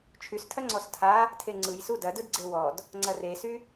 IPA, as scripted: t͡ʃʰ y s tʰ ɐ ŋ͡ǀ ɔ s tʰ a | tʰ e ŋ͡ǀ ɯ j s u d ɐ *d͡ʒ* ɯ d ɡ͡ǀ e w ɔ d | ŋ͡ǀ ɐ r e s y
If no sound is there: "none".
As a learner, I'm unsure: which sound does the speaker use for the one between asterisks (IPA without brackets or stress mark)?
d